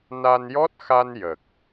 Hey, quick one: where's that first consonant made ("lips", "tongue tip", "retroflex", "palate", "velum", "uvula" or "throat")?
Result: tongue tip